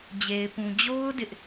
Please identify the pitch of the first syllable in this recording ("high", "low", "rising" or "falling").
low